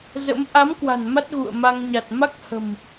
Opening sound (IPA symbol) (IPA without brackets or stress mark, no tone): z